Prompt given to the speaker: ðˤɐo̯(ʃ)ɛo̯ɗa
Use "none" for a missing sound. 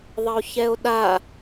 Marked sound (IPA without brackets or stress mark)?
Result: ç